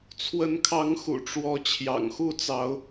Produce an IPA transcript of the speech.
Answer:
t͡sʰwə˨˦nkʰɑ˨˦ŋ xṵ˨˩ʈ͡ʂwɔ˨˦ t͡ɕʰjɑ̰˨˩ŋxu˥˨t͡sɑ˨˦ʊ̯

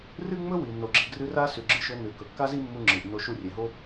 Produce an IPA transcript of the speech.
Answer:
rɨ˥ŋ͡mɵ˥wi˩ no˩ɡ͡ǁi˩ɡrɨ˧ ra˥sʉ˩ɡ͡ǁɨ˧ʃɵ˧ nʉ˩ kɵ˩kːa˥zi˥mːu˧ ŋ͡ǁɨ˩ʔ no˧ʃu˧rʲe˩ɦo˥

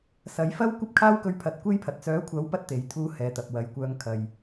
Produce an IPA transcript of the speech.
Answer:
sɐ˨˥jfɐ˥w kʷɐ˥p̚kʰaː˥wkɵ˧ɥpʰɐ˨˥t̚ kʷe˥jpʰɐ˨t̚ t͡sœː˨˥kʷʰɐ˨˥w pɐ˥t̚t̪e˨˥j t̪ʰuː˥hɛː˨˧t̪ɐ˨p̚ wɐ˨jkʷœː˧ŋ kʰɐ˨j

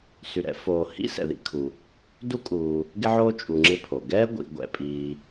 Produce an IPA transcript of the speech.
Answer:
sy˨ɾɛ̰˥ foː˨hḭ˥ sɛ̰˨ðḭ˦kʰu˨ | du˥kʼuː˨ | ɡɪ˥ʕoː˥t͡ʃʼu˨ŋ͡ǁɪ˦ pʰo˩ɡɛː˥ɡʷḭ˨ ɡʷɛ̰˨pʼiː˨

